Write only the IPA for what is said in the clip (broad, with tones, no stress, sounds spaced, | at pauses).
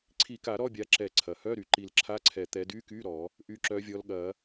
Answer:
ǀʰ i˨˩˦ k a˨˩˦ ɾ ɔ˧˥˧ bʲ a˨˦ ǁ ɛ˨˩˦ ǀʰ ɐ˩ h œ˧˥˧ ɾ y˩ ǃ i˨˩˦ l ǁʰ a˧˥˧ ǀʰ ɛ˨˩˦ t̪ ɛ˨˦ d y˧˥˧ k y˧˥˧ ɾ ɔ˨˩˦ | ʔ y˨˦ ǁ œ˨˦ vʲ ɔ˨˦ l ɠ ɐ˨˩˦